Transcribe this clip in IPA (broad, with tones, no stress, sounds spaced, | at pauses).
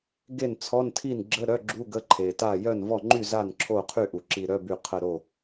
ɡ e˥˩ n t͡sʰ ɔ˧˥˧ n tʰ i˥˩ n ɡ͡ǁ ə˧˥˧ ɾ œ˧˥˧ ɡ͡ǁ u˧˥˧ ɡ ə˧˥˧ ǃʰ e˩ t a˥˩ j œ˥˩ n v ɔ˥˩ ŋ͡ǃ y˥˩ z a˥˩ n ǁʰ o˥˩ qʰ y˥˩ ʔ u˩ ǁ i˧˩ ɾ œ˧˥˧ b y˧˩ qʰ ə˧˩ ɾ o˧˩